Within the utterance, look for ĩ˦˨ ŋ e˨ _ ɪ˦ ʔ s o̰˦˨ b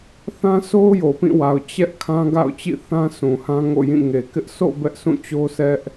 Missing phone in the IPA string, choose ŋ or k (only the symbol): k